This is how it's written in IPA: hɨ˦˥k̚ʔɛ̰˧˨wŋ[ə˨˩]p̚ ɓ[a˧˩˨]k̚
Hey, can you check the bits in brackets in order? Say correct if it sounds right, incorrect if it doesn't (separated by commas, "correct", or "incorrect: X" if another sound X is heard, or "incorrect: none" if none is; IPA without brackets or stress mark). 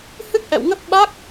incorrect: ə˦˥, incorrect: a˦˥